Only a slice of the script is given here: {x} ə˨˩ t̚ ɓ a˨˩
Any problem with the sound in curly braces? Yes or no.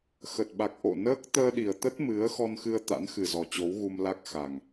no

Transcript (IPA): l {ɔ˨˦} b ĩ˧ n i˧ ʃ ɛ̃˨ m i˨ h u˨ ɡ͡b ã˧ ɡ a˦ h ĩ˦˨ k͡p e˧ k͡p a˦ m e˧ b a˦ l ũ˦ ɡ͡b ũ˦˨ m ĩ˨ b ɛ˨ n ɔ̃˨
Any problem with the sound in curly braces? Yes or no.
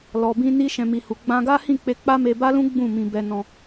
yes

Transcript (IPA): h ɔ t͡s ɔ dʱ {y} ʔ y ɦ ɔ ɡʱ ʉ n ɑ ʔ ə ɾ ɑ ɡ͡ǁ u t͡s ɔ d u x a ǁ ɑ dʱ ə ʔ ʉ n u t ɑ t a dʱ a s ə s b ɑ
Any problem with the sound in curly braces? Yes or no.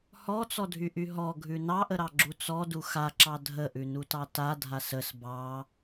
no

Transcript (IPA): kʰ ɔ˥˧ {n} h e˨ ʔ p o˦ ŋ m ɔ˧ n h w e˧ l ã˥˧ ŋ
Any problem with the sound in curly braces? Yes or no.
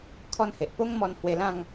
no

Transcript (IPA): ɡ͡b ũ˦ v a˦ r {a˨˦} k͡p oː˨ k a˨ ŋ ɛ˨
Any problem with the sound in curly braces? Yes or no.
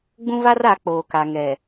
no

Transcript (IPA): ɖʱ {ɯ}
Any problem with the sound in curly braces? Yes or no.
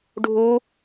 yes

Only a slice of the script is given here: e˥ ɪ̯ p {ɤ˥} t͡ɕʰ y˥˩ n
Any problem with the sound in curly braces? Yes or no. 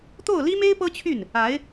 no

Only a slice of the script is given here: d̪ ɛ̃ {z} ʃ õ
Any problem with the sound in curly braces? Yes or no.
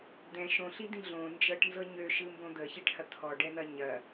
yes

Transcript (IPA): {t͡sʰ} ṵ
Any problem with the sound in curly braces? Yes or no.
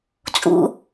yes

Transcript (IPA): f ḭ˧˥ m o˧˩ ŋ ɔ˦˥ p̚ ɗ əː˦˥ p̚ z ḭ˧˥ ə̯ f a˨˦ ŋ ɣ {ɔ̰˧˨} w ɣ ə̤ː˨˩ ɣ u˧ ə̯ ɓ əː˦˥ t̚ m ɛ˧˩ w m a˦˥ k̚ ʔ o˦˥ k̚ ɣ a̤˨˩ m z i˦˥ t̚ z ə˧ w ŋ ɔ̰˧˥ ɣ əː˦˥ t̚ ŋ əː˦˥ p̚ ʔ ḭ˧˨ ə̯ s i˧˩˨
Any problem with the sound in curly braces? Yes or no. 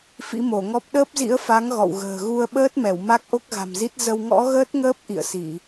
no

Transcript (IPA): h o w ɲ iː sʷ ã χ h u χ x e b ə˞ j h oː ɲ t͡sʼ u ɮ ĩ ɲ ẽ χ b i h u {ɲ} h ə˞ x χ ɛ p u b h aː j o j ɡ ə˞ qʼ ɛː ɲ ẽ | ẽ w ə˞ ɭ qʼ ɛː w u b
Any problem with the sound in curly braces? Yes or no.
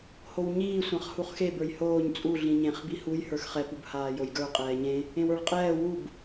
yes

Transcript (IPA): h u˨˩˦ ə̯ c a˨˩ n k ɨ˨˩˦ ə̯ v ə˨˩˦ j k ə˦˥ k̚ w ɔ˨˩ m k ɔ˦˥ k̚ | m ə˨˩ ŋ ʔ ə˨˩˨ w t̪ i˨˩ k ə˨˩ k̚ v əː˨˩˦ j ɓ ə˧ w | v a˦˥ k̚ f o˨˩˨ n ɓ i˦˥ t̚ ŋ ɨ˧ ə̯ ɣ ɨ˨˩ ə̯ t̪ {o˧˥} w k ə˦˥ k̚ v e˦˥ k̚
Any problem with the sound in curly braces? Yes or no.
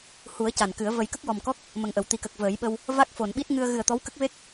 yes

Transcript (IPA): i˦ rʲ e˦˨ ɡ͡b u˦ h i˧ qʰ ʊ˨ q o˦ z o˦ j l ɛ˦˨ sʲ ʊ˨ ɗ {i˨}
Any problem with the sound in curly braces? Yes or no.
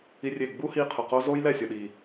no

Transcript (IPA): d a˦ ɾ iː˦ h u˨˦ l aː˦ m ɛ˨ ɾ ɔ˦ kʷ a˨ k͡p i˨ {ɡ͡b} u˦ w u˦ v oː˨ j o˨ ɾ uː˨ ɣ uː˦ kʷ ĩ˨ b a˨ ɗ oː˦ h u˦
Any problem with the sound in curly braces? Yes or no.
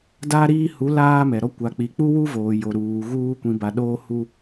yes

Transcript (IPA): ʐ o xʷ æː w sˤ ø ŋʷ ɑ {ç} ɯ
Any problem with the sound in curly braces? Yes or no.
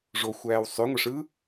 yes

